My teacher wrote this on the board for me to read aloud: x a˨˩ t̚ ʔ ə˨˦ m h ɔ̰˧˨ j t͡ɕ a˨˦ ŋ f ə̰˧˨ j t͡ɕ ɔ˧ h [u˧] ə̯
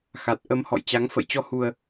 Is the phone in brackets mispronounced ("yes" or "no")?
no